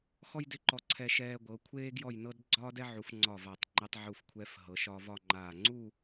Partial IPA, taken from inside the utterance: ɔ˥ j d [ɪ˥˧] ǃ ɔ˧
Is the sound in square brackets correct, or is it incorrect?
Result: correct